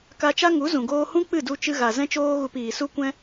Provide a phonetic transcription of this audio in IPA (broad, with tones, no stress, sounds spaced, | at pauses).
k a˧ t͡ʃ a˦ ŋ u˨˦ z ũ˨ ɡ oː˧ h ũ˦ k͡p ɨ˦˨ d u˧ t͡ʃ ɨ˧ ɣ a˨ z ɛ̃˦ t͡ʃ oː˦ ɣ u˧ p iː˨ s u˦ kʷ ɛ̃˦